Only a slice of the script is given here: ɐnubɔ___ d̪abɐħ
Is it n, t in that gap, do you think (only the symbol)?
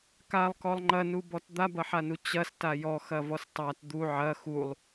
t